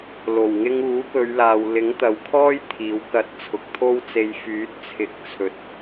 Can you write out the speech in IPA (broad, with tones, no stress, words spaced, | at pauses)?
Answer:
lo˨˩wŋɪ˧ŋuː˨˥kɵ˨˧ɥ laː˨w lɪ˨˥ŋt̪ɐ˨˧wkʰɔː˥j t̪ʰiː˨˥wkɐ˧t̚ t͡sʰʊ˨˥k̚t̪ʰo˥wt͡se˧j fyː˨˥t̚t͡sʰɪ˨˥k̚t͡sʰɵ˨˥t̚